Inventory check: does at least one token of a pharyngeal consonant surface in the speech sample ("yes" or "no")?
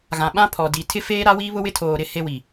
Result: no